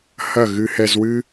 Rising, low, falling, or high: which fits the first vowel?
falling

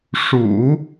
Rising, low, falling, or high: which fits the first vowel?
low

